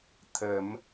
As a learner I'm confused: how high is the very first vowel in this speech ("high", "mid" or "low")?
mid